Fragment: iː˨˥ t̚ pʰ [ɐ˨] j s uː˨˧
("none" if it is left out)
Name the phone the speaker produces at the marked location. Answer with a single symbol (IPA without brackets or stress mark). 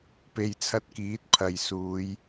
ɐ˨